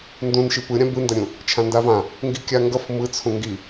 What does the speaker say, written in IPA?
n d ũ n ʃ i p ɯ ɾʲ ã b ɯ n d ʌ ɾʲ ũ | t͡ʃʰ ã n d a v ã | ŋ ɡ i kʲ a ŋ ɡ ʌ f m ɯ t͡sʰ ũ ŋ ɡ i

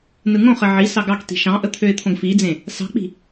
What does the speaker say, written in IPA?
n ɯ ŋ õ χ ɘ ʕ i s ɑ ɡ ɑ k t i̤ ʃ ɑ̃ ʔ ə t̪ʰ ø ɪ̯ t̪ʰ õ ɡ f i d͡z ẽ | s ɑ̤ k͡p i̤

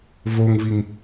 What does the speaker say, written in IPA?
v o ŋ v i ŋ

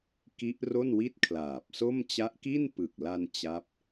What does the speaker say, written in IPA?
k i˦˥ ʔ r o˥˩ n w i˥˩ t̚ kʰ l aː˨˩ p̚ s o˥˩ m t͡ɕ a˦˥ ʔ k i˥˩ n p ɯ˨˩ k̚ l a˧ n t͡ɕ a˦˥ p̚

